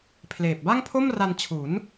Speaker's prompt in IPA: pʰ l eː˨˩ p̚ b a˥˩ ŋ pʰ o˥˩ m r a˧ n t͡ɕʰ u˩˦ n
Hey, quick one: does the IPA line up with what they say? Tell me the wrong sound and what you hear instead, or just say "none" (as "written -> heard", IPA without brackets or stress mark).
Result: none